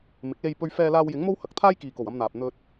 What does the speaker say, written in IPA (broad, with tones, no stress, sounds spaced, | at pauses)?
m ɪ˨˥ k̚ l e˧ j p ɵ˧ ɥ f ɛː˧ l aː˧ w j ɪ˨˥ ŋ m o˥ w h ɐ˨ k̚ t̪ʰ aː˥ j k iː˨ k o˨˩ w ɐ˧ m n̪ aː˨ p̚ n̪ ɵ˧ t̚